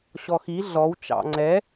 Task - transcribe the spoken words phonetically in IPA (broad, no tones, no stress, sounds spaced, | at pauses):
ɕ ɔ x i ɮ ɔ w t͡ʃ ɑ̰ ŋ͡ǀ ɛ